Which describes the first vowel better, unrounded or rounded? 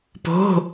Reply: rounded